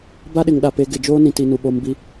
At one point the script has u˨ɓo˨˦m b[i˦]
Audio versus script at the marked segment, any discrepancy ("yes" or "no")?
no